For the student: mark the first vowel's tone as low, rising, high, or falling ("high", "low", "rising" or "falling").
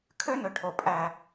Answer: high